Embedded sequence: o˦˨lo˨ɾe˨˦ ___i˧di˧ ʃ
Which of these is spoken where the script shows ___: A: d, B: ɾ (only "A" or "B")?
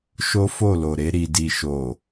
B